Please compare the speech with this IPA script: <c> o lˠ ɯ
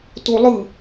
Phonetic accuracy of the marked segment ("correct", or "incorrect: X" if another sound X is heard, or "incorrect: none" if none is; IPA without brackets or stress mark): incorrect: t